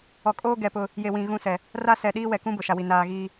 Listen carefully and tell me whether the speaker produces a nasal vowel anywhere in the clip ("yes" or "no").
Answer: yes